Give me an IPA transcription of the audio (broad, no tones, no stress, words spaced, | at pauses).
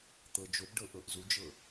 t̪ɤd͡ʒobɖɤ ʔɤʔzud͡ʒɤ